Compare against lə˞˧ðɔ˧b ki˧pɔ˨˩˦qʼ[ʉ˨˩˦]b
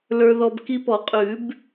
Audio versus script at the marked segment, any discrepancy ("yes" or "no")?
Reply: no